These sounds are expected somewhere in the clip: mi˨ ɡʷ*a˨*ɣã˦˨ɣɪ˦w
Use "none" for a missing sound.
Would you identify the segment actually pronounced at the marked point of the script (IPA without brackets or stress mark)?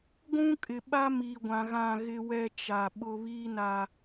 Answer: ã˨